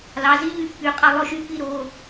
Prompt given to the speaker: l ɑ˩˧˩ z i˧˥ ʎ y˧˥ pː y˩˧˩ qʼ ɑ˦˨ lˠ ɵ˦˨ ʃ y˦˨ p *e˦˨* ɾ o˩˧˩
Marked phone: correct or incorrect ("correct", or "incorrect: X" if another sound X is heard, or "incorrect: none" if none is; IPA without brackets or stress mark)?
incorrect: i˦˨